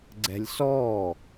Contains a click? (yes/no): yes